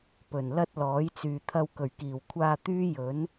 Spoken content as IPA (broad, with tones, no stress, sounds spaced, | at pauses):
p ɵ˨˩ n l ɐ˥ t̚ l ɔː˨˥ j t͡s yː˨ t̪ʰ ɐ˧ w k ɵ˨˩ ɥ k iː˨˩ w kʷʰ aː˧ t̪ yː˥ j ɵ˨˥ n